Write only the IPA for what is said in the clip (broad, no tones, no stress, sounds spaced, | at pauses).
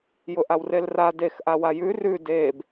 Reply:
j ʊ ʔ a w r e l r a d e x ʔ a w a j ʉ r ʉ d e b